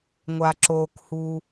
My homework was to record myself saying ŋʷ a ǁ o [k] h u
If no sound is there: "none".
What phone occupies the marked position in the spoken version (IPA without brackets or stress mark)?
k